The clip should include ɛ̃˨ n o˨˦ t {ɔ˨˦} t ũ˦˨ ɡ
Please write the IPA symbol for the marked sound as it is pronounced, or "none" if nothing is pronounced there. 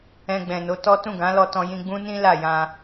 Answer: ɔ˦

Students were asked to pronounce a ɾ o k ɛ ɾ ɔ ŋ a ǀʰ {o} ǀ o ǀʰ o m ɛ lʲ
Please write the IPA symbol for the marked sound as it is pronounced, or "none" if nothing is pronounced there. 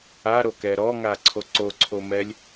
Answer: o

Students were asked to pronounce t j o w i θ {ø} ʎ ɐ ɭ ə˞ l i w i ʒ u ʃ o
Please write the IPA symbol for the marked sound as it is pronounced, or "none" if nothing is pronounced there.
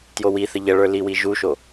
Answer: ə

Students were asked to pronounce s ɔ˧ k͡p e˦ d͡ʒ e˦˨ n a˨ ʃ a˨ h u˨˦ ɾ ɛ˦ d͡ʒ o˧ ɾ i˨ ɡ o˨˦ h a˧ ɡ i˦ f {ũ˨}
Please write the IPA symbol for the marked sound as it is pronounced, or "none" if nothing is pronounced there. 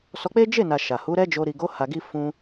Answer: ũ˧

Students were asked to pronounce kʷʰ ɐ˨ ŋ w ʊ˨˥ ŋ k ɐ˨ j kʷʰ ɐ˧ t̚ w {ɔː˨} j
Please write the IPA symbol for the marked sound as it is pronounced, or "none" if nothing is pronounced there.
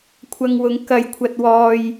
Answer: ɔː˧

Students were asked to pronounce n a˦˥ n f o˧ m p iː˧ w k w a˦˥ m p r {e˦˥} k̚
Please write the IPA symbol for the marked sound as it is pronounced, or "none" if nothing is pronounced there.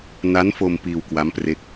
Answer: e˦˥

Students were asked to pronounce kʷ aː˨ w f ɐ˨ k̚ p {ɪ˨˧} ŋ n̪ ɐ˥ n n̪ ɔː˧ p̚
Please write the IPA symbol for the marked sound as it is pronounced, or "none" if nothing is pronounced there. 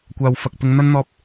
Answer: ɪ˨˧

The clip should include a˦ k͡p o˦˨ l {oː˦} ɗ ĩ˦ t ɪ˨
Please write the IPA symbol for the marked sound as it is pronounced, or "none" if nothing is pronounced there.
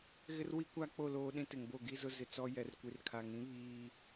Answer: oː˦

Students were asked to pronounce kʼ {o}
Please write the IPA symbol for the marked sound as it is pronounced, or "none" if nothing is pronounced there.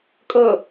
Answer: ɤ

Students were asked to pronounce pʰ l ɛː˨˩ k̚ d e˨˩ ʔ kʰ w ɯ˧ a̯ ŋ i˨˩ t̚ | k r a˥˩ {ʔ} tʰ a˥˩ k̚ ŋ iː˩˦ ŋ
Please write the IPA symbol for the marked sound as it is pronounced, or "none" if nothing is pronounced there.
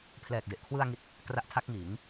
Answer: ʔ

